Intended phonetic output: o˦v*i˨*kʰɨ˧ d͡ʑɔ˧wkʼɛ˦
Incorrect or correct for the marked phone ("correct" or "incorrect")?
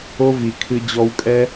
correct